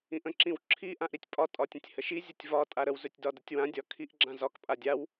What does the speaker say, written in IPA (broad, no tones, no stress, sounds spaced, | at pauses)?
ĩ ʔ ə̃ ǁ ĩ w ǁʰ i ʔ ã ʔ ɾ i tʲ pʼ ɒ tʼ ɒ tʲ ə̃ tʲ h ə ʃ i zʲ ə tʲ v ɒ tʼ a ɾ ə w z ɵ tʲ d ɒ d ə tʲ w ã dʲ ɒ kʰ i ʔ ɡ͡ǁ ã z ɒ k pʼ a dʲ a w